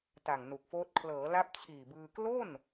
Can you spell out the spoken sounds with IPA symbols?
t a˨˩ ŋ n u˨˩ k̚ f oː˦˥ t̚ kʰ l ɤː˩˦ l a˦˥ p̚ t͡ɕʰ iː˨˩ b ɯː˧ k l o˥˩ n

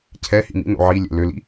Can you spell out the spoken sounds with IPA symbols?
cʰ ɛ h ḭ m ḭ n o̰ ʕ i lʲ ɛ̰ l ø l ḭ

